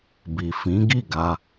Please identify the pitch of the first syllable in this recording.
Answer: low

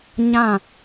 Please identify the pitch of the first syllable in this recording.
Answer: falling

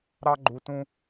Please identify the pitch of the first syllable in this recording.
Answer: high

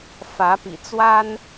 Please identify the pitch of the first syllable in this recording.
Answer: rising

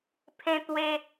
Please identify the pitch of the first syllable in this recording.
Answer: high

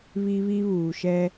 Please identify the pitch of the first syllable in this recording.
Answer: high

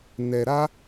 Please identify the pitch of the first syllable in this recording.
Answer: low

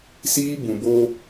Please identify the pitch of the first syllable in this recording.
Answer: high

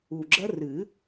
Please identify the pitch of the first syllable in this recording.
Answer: low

